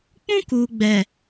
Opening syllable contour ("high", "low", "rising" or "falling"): high